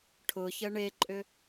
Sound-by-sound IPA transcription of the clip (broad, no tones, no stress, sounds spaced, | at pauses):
ʈʰ ʊ ç ə ɳ e ǃʼ ʏ